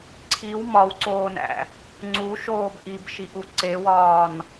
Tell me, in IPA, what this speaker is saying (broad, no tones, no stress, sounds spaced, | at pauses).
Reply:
ǀʰ i w m ɒ w ǀ oː n æ̰ | ŋ͡ǀ u ʃ oː b ʔ i b ʃ i ʔ u ǀ e w ɒː n